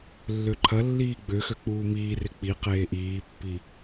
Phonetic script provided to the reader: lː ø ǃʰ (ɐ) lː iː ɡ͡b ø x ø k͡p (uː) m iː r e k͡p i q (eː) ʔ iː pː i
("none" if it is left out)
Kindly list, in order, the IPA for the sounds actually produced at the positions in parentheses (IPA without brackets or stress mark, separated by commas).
ɐ, uː, eː